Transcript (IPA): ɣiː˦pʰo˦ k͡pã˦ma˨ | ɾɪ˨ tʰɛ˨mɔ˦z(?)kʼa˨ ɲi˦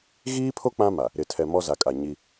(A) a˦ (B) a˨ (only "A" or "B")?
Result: B